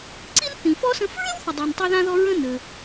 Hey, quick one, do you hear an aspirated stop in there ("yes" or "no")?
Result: no